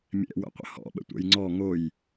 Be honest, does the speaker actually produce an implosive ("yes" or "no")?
yes